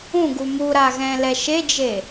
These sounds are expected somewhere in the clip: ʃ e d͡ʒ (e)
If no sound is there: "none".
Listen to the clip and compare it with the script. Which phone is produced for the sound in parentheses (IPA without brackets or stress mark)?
e